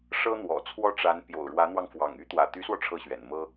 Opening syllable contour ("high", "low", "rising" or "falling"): high